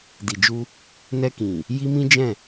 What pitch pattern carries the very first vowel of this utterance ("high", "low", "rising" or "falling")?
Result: low